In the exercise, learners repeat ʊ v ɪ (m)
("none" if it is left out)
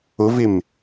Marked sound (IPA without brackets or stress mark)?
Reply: m